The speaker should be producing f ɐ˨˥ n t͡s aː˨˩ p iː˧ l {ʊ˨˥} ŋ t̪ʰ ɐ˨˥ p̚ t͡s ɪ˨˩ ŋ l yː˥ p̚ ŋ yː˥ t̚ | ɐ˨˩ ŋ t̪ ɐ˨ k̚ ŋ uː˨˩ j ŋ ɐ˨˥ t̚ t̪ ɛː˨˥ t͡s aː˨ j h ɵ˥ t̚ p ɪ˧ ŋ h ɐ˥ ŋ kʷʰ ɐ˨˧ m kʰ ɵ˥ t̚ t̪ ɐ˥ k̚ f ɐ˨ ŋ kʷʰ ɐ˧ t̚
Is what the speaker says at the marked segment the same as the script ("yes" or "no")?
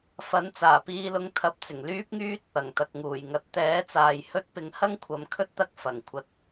no